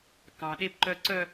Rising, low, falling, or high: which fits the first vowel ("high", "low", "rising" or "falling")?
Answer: high